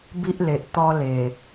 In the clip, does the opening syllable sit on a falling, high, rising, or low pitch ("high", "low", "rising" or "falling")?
high